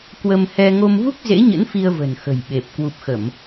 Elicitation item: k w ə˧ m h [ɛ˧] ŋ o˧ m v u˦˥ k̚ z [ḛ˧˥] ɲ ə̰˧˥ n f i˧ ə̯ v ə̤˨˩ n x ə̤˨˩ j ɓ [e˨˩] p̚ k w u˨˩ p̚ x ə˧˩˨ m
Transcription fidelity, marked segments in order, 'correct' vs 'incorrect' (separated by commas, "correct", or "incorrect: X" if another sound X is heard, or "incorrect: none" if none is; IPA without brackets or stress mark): correct, correct, correct